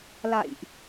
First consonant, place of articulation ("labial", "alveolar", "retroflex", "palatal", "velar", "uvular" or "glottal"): alveolar